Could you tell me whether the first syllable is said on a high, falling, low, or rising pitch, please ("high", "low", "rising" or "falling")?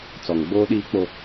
low